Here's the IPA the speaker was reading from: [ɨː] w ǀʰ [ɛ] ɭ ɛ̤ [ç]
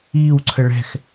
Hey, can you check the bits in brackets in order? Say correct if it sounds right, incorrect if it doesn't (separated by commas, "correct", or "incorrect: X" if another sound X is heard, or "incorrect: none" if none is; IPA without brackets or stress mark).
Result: incorrect: iː, incorrect: ə, incorrect: x